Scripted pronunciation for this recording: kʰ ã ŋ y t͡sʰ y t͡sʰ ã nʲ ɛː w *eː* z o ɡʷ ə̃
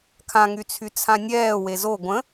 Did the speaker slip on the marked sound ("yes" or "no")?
yes